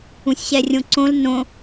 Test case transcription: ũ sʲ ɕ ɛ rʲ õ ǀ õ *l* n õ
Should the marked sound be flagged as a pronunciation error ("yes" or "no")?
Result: no